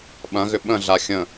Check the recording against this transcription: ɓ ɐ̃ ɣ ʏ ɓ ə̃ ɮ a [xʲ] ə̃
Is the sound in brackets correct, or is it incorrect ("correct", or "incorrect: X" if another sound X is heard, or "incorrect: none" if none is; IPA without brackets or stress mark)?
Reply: correct